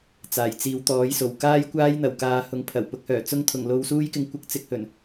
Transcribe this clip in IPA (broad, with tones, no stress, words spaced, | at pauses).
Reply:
t͡saː˨˩jt͡siː˨˧w t̪ɔː˨˥jso˨˩wkaː˥jkʷaː˥j n̪ɐ˨˩wkaː˨˧hʊ˨ŋ pʰɐ˨˩w pʊ˨˥k̚hœː˨˩ t͡sʊ˧ŋt̪ʰʊ˨˩ŋ lo˧wsuː˥jkɪ˧ŋkʷɪ˧k̚ t͡sɪ˧k̚hɵ˨˩n